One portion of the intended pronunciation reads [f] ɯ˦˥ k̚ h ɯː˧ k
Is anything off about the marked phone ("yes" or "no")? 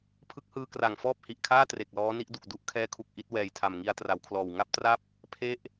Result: yes